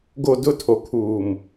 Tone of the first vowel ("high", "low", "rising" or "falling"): low